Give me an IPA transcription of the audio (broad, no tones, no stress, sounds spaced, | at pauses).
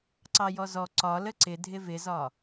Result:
ǀ ɑ j ɔ z ɔ ǀ ɒ l ə ǀ ɪ dʱ ɪ v ɪ z ɒ